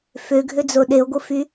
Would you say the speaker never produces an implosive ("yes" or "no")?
no